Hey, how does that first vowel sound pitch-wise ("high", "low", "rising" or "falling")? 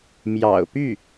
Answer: low